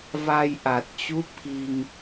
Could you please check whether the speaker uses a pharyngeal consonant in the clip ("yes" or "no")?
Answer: no